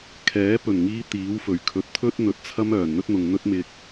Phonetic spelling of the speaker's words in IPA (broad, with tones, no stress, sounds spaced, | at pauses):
kʰ ɛː˨˥ p ɵ˨˩ n ŋ iː˧ t̪ iː˨˥ w f ɵ˨˩ ɥ kʰ ɵ˨˥ t̚ t̪ʰ ɵ˥ t̚ n̪ ɵ˨˥ t̚ t͡sʰ ɐ˥ m œː˨˩ n n̪ ɵ˥ t̚ n̪ ʊ˨ ŋ n̪ ɵ˥ t̚ m ɪ˧ k̚